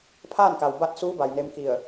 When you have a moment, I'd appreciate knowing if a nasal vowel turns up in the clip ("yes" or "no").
no